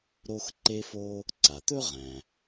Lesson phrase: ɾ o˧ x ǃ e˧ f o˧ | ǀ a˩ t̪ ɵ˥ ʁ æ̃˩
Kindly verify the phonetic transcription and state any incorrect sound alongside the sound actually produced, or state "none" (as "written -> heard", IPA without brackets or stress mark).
none